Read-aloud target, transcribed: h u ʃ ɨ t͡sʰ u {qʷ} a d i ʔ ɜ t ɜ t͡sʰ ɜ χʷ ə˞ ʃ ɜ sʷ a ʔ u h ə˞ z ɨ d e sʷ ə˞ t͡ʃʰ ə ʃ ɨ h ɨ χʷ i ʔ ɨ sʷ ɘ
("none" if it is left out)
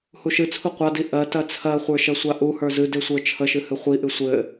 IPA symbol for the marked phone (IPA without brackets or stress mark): qʷ